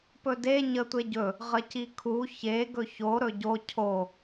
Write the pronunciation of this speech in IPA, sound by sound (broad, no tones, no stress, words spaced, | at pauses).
pɵde ɲətʷeɟɵ | ʁəcikʰu çe ɡɵço ɾɵɟo cʰo